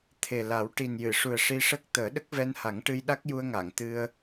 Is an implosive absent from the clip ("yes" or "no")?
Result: no